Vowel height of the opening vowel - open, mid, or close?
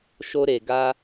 mid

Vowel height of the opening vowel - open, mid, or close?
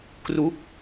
close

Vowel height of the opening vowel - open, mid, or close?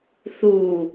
close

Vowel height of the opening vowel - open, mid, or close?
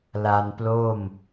open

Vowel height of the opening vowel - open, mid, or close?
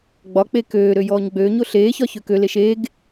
open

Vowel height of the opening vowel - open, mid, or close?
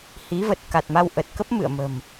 close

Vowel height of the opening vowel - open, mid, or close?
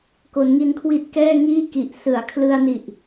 mid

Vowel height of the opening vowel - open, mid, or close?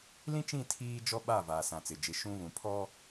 close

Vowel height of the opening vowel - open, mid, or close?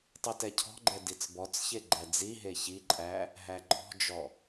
close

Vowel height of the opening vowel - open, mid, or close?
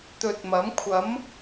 mid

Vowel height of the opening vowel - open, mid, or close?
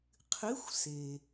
close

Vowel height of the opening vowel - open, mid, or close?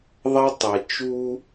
open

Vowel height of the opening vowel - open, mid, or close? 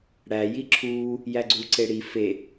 open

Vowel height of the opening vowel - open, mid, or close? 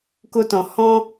mid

